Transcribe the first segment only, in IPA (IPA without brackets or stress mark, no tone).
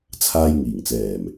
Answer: t͡sʰ